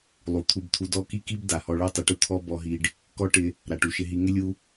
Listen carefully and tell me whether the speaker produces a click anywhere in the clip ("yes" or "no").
no